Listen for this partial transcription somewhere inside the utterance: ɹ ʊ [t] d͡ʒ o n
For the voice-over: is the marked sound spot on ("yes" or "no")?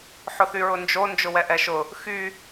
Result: no